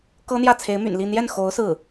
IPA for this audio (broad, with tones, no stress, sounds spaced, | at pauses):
k ɤ˥ n̪ j ä˥˩ t͡sʰ e˧˥ ɪ̯ m y̰˨˩ n l i˥˧ n̪ j ɛ˥˩ n x o˧˥ ʊ̯ s ɹ̩˥˩